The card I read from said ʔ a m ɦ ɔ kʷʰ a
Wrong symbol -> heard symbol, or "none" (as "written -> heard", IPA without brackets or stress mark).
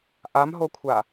ɔ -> o